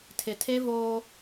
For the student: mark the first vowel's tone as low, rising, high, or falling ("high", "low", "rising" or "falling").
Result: low